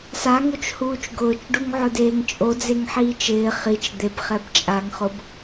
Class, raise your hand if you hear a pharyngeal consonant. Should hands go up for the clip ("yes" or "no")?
yes